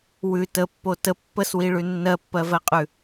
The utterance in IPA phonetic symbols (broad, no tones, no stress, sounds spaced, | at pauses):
w ʉ t ə pː o t ə pː ə s w i ɭ ʉ nː ɜ pː ɜ v ɜ qʼ ʉ